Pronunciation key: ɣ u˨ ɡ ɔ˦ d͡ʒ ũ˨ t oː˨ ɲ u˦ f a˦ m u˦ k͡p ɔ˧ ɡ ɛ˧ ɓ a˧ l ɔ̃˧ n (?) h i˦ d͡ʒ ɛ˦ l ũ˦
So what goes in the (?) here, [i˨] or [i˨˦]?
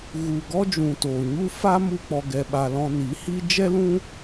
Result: i˨˦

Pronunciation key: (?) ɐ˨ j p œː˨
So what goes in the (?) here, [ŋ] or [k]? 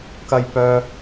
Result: k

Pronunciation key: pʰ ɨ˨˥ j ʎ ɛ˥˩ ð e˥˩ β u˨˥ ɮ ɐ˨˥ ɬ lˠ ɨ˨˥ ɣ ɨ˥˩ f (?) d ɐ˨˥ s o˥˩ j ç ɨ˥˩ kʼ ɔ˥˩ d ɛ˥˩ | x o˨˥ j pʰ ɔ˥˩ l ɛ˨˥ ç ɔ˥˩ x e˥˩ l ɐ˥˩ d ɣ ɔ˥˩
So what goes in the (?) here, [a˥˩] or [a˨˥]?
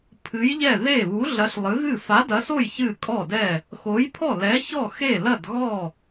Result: a˨˥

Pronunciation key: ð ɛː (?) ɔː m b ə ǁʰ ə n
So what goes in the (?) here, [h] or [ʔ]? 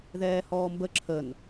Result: h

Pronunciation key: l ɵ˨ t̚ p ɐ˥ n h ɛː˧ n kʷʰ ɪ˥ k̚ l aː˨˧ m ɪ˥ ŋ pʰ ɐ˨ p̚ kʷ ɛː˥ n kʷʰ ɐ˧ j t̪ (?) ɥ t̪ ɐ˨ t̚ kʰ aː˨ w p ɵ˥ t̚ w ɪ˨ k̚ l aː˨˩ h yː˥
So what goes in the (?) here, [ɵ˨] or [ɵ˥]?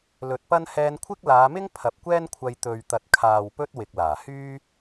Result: ɵ˨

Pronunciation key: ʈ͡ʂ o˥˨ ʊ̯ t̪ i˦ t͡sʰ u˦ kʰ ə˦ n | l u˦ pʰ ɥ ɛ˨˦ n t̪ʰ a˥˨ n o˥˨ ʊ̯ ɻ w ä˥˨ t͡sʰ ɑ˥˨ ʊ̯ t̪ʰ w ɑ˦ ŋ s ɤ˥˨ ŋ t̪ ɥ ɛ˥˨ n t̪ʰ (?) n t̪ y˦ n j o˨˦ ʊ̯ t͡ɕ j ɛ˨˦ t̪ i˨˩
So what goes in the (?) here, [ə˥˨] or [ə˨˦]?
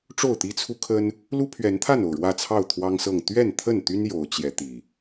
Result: ə˥˨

